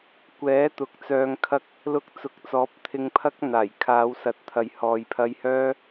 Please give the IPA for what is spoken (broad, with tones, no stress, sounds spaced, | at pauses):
kʷ ɛː˨˥ t̪ ʊ˨˥ k̚ t͡s œː˧ ŋ kʰ ɐ˥ k̚ | l ʊ˧ k̚ t͡s ʊ˨˥ k̚ t͡s ɔː˨˥ p̚ t̪ʰ ɪ˧ ŋ pʰ ɐ˥ k̚ n̪ aː˨˩ j kʰ aː˨˧ w s ɐ˨ t̚ t̪ʰ ɐ˨ j h ɔː˨ j pʰ ɐ˧ j h œː˥